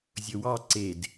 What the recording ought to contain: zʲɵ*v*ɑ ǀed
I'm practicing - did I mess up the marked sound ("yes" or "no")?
yes